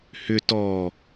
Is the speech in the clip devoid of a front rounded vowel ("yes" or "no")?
no